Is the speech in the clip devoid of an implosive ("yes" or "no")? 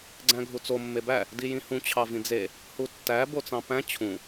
yes